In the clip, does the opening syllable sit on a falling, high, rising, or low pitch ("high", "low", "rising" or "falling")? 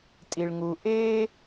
low